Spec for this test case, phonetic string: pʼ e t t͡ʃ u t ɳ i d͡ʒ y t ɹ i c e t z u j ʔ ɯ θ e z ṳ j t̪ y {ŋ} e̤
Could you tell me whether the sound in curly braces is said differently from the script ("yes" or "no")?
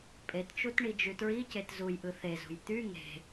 no